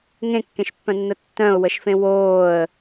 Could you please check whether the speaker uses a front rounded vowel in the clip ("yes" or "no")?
yes